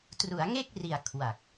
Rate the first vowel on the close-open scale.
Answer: close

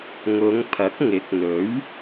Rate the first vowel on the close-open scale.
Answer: close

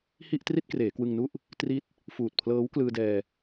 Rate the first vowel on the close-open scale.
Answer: close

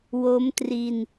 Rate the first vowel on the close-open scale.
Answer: mid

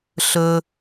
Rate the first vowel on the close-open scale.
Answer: mid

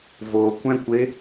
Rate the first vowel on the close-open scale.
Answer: mid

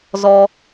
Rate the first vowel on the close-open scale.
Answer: mid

